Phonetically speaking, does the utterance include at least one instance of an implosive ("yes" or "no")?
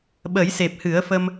yes